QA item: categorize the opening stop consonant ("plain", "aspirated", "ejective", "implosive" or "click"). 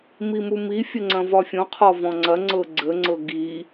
click